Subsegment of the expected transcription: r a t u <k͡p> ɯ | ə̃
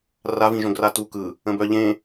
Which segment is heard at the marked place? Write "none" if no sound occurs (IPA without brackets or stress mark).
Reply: k